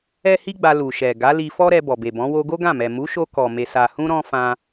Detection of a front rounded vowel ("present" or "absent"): absent